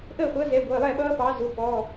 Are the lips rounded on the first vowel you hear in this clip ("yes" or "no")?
no